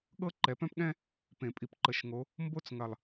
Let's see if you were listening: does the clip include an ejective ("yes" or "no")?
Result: yes